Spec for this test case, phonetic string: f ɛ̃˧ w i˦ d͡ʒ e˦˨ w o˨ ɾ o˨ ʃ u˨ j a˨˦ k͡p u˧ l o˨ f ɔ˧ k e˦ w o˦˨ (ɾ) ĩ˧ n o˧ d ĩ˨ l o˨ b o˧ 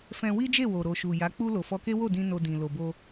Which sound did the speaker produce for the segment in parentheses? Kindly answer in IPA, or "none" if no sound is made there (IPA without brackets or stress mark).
d